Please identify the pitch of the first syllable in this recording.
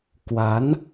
rising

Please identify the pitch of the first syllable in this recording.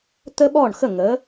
high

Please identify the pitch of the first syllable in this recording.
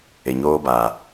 low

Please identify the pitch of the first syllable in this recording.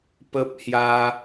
high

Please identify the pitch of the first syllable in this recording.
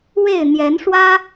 falling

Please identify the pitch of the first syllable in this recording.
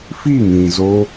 falling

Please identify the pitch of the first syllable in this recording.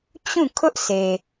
falling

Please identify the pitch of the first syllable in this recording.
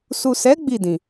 low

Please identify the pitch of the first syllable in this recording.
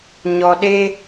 low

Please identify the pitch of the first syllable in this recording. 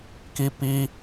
high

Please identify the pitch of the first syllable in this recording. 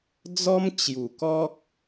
high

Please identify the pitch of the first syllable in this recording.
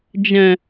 low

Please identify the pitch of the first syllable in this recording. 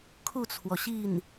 falling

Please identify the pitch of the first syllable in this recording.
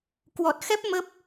low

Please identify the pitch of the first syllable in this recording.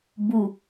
low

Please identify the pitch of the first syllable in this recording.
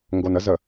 low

